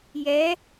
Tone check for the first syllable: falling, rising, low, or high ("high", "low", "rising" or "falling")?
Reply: rising